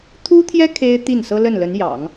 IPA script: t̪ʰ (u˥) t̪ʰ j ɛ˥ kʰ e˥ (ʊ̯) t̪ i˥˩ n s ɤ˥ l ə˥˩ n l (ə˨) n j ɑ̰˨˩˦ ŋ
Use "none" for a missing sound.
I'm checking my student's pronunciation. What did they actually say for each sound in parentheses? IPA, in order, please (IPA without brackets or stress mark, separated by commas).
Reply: u˥, ɪ̯, ə˧˥